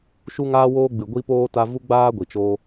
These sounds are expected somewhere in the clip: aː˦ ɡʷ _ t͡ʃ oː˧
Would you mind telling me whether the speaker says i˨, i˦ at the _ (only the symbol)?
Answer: i˨